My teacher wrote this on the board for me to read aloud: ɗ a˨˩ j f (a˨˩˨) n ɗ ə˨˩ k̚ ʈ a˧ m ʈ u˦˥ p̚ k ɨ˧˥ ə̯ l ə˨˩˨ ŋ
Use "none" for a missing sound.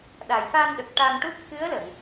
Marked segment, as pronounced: a˧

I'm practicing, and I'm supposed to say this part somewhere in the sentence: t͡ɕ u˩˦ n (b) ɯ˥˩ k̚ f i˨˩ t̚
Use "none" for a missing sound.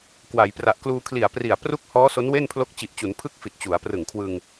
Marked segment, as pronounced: pʰ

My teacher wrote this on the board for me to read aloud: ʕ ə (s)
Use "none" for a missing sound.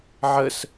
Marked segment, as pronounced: s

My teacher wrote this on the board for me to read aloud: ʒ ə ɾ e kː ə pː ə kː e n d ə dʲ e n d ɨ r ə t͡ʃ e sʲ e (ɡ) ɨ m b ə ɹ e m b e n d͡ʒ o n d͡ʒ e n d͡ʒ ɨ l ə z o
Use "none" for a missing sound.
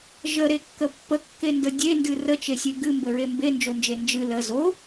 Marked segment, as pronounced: ɡ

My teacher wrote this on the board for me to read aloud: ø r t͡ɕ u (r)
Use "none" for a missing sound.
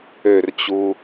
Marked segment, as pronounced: none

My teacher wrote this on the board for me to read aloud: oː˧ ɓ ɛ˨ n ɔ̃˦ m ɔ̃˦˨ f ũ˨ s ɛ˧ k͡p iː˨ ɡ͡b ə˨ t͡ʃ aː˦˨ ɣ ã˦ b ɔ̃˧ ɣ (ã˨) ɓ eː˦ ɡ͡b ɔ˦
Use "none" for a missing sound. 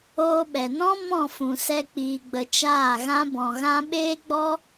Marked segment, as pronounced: ã˦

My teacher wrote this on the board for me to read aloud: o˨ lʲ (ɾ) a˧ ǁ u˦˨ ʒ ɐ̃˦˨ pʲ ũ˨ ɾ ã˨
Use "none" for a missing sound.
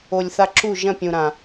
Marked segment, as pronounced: θ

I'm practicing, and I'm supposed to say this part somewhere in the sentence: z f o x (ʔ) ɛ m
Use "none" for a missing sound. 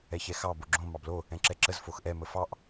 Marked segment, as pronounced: ʔ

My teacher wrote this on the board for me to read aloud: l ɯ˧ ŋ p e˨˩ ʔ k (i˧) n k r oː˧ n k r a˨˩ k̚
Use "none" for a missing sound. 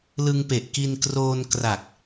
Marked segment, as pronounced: i˧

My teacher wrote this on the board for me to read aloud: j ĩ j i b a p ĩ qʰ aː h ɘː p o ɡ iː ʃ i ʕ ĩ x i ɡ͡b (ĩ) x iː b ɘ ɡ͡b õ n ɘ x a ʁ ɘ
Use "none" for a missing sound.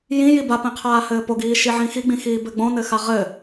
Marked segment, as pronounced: ĩ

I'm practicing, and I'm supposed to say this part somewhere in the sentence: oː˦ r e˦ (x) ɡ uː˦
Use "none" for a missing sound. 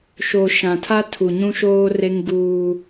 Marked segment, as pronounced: ŋ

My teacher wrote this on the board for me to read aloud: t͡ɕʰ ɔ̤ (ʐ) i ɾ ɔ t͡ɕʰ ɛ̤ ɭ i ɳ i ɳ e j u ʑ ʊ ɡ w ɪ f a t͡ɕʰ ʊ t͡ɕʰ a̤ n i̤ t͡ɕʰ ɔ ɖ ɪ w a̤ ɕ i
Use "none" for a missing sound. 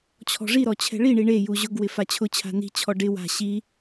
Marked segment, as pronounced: ʐ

